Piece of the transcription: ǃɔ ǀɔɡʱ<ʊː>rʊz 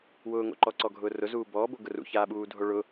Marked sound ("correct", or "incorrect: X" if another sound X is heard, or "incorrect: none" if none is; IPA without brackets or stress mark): correct